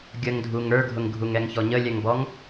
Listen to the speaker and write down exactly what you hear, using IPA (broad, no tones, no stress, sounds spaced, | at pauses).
ɡʲ ə ŋ dʱ u ŋ ə˞ ɡʱ ʊ ŋ ɡʱ u ŋ ɛ ŋ ç ɔ ɲ ə lʲ ɛ ŋ b ɔ ŋ